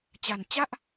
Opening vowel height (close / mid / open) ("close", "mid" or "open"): open